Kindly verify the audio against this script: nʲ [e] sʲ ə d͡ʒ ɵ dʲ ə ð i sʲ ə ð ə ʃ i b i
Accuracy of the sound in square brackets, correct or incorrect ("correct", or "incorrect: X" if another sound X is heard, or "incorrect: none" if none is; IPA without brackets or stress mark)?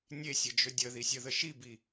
correct